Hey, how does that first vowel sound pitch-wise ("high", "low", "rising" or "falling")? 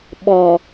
low